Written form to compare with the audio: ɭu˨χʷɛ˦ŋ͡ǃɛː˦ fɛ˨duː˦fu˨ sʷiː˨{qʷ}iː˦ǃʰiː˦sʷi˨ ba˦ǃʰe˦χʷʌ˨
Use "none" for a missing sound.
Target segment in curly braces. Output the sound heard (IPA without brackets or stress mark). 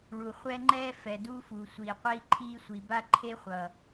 qʷ